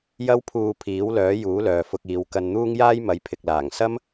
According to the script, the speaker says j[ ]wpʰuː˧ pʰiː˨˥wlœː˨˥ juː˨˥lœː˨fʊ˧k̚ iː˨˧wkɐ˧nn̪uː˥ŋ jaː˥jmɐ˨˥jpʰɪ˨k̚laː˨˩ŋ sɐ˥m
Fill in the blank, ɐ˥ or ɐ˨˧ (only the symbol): ɐ˥